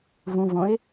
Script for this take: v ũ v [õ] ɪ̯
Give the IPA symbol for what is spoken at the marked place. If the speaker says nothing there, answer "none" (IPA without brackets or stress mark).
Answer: õ